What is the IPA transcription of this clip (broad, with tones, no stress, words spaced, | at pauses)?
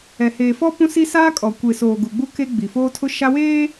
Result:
ɛ˨heː˨fɔ˦ pũ˦si˦ saː˦ kʼɔ˨kʷe˨soː˨ ɡu˨ɡ͡bu˦ ke˦ ɡ͡bi˨foː˦tʰʊ˦ ʃa˦weː˦